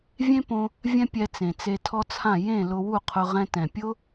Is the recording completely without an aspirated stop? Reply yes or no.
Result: no